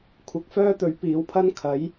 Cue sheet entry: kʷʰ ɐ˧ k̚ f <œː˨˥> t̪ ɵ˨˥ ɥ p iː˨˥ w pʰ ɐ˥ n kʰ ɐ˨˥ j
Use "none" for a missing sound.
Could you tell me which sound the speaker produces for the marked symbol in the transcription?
œː˥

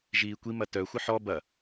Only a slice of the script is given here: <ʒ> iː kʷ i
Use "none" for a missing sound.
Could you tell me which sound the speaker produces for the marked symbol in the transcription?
ʒ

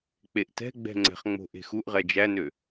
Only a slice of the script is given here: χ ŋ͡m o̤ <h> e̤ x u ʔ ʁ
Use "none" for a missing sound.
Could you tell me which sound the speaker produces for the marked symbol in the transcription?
ʔ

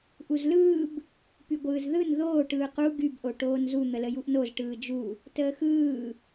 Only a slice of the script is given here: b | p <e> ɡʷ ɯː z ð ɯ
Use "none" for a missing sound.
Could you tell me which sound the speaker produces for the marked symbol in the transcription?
y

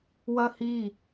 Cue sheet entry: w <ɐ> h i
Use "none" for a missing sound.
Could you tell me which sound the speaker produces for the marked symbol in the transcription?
ɐ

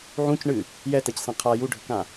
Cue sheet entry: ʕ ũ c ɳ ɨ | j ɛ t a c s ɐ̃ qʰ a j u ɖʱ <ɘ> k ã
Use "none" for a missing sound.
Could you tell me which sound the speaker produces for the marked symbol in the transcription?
ɘ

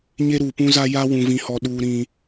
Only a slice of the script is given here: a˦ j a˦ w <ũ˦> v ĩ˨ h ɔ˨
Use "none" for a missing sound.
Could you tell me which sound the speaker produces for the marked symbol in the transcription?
ũ˨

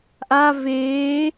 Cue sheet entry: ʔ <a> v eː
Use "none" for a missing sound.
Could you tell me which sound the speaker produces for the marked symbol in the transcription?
a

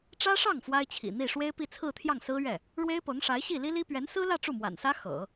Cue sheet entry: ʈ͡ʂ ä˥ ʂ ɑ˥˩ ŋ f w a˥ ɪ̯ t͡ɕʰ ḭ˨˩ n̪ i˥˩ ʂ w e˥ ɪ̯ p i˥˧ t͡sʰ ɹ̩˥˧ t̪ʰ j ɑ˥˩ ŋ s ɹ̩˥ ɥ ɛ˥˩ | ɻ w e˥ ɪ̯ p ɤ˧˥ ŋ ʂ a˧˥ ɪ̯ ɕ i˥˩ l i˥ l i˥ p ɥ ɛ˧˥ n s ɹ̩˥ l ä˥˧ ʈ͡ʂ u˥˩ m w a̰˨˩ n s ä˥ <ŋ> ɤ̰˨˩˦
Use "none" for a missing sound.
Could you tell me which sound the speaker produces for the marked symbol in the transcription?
x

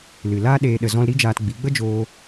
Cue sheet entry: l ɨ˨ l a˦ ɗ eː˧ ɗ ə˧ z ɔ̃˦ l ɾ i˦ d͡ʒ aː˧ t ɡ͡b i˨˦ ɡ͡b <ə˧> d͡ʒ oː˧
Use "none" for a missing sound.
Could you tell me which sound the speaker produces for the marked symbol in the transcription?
ə˦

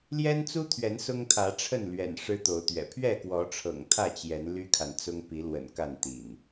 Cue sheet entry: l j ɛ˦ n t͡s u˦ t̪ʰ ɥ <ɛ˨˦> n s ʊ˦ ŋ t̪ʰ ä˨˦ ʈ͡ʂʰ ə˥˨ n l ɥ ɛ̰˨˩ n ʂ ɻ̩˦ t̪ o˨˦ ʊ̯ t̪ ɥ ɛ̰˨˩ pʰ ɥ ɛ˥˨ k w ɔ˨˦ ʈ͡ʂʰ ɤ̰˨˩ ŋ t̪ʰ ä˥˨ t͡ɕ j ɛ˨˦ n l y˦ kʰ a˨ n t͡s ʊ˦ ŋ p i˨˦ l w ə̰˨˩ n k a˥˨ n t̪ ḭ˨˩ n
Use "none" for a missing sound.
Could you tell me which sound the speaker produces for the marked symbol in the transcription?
ɛ˨˦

